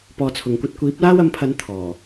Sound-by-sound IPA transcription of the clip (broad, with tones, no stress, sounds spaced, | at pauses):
p ɔː˧ t͡sʰ ʊ˨ ŋ kʷ ɐ˥ t̚ kʷ iː˨˥ p̚ l aː˥ w ɐ˨˥ m pʰ ɐ˨˧ n t̪ʰ ɔː˨˩